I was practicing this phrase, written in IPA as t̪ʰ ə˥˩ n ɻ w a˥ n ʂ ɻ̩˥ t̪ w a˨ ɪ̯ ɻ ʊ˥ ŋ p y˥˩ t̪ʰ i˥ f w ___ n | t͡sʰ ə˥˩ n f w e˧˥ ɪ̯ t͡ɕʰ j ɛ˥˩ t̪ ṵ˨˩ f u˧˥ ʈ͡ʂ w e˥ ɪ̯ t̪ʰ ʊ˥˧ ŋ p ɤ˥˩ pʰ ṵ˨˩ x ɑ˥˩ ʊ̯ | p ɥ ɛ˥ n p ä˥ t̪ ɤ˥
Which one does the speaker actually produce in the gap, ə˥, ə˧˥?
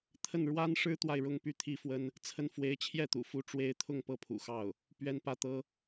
ə˥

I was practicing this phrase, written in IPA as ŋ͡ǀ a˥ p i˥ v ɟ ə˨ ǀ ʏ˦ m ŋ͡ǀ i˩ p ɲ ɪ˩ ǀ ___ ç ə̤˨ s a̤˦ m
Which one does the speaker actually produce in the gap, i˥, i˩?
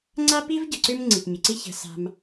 i˥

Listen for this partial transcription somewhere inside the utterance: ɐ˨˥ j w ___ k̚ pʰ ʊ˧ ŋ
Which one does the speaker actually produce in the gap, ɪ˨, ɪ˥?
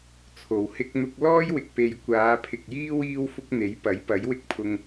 ɪ˥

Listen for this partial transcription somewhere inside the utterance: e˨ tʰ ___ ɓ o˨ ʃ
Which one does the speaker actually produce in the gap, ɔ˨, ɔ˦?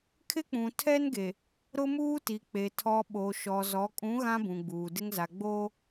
ɔ˨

